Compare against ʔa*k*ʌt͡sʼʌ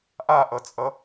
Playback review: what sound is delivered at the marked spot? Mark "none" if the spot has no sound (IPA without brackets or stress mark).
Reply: ʔ